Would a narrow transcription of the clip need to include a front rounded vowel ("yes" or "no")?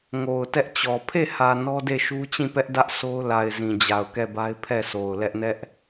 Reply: no